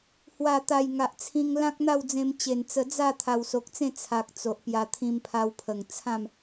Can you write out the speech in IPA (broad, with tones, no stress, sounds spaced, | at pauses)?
h w a˨˩ t̪ a˨˩ j ŋ a˨ ʔ t͡sʰ ĩ˧ ŋ l ã˦ k̚ n̪ a˥˧ w d͡z ẽ˧ m t͡ɕ e˨˩ n t͡s ə˧ d͡z a˥˧ t̪ʰ a˨˩ w s o˨ k̚ t͡s ẽ˥˧ t͡sʰ a˨ k̚ t͡s o˨ ʔ p j a˧ t̪ʰ ĩ˧ m pʰ a˧ w pʰ ə˨˩ ŋ t͡sʰ ã˥˧ m